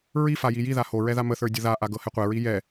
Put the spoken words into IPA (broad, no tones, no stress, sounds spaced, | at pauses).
ɹ i f a j i j i ð a h o ɹ ɛ ð a m ə θ ə˞ dʲ ə ð a ʔ a ɡ ɤ h ɛ qʷ ɛ ɹ i j ɛ